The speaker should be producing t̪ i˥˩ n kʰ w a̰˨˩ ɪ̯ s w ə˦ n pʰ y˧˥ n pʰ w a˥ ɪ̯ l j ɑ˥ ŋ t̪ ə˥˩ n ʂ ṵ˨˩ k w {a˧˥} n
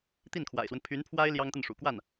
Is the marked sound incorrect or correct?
incorrect